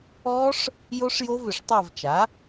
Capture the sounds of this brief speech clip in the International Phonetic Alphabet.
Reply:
ɔ˦˥ ʂ | j o˦˥ ʂ j o˦˥ v ʏ˧˩˧ ʂ tˤ a˦˨ v t͡ʃ a˩˥

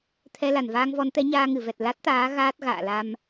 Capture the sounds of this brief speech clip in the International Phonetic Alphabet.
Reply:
t̪ʰ ɛ˧ l a˧˩ n v aː˧ ŋ v ɔ˨˦ n t̪ ɛ˨˦ ɲ aː˧ ŋ ɨ˧˩ v ɛ˨˩ t̚ l a˦˥ t̚ t̪ aː˨˦ ɣ aː˦˥ t̚ ɣ a̰ː˧˨ l a˧ m

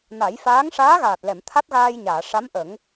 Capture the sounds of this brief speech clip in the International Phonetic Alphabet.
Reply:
n a˨˩˦ j f aː˧˥ ŋ ʂ aː˧˥ ɣ aː˨˩ t̚ l ɛ˨˩˨ m t̪ʰ a˦˥ t̚ ɣ aː˧ j ɲ aː˨˩˨ ʂ a˧˥ m ʔ ə˨˩˦ ŋ

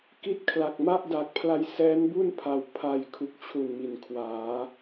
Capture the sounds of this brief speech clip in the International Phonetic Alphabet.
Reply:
k i˥˩ t̚ kʰ l a˨˩ k̚ m a˥˩ ʔ d a˨˩ k̚ pʰ l a˧ j s ɛː˦˥ n b u˥˩ n pʰ a˨˩ w pʰ a˧ j kʰ u˨˩ k̚ t͡ɕʰ u˨˩ n m i˩˦ n kʰ w aː˩˦

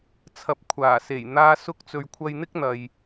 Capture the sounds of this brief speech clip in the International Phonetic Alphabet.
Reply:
t͡sʰ ɐ˨ p̚ kʷʰ aː˨˩ s e˨˩ j n̪ aː˧ s ʊ˧ k̚ t͡s ɵ˨ ɥ kʷʰ ɐ˧ j n̪ ɪ˥ k̚ n̪ ɐ˨ j

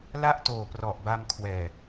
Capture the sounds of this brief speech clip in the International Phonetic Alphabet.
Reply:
l a˥˩ ʔ t oː˨˩ p r ɔ˨˩ ʔ b a˧ m kʰ w ɛː˨˩

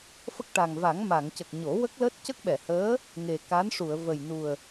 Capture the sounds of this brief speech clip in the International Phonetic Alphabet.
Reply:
f ə˦˥ k̚ ʈ a˨˩ ŋ v a˨˩˦ ŋ m a˨˩˨ ŋ c ə˨˩ k̚ ɲ o˨˩˦ w ə˦˥ k̚ l əː˦˥ t̚ c ə˦˥ k̚ ɓ ɛ˨˩˨ h əː˧˥ | ŋ e˨˩ k a˧˥ n ʂ u˨˩˨ ə̯ v ə˨˩ j n u˨˩ ə̯

